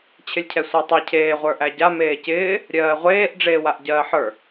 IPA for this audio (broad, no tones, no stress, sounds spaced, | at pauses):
t͡ɕʰ ɪ lʲ cʰ ɛ sʷ ɜ tˤ ɛ cʰ eː ʁʷ ə˞ ʔ æ ɟ a m eː c ɪː | ɾʲ ɜː ʁʷ eː ʔ ɖ͡ʐ eː w a ʔ ɟ ɜː ħ ə˞